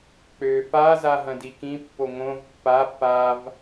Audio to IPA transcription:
k͡p ø f a z a ɦ ɐ̃ d i k ĩ pː o ŋ õ v pː a f a v

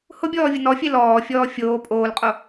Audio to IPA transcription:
h ʊ bʲ ɔː vʲ ʊ n ɔ fʲ e l ɔː fʲ ɔː fʲ oː pʼ oː l qʼ o

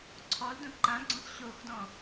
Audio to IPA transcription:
ǀʰ ɔ l d õ ǃ ã ɡ͡ǀ ɔ̃ s ɕ o x d ɔ̃

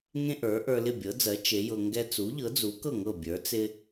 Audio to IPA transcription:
ŋ ẽ˥ ʔ ə˞˩˥ ʔ ə˞˧ l ɪ˥˩ bʲ ɤ˩˥ d͡z ɜ˩˥ t͡ʃ e˩˥ j ɤ˧ ŋ ɡ ɛ˥ t͡s u˩˥ ʎ ɤ˩˥ d͡z u˩˥ k ɤ˥˩ ŋ ɤ˥˩ bʲ ə˞˩˥ t͡s ɪ˥

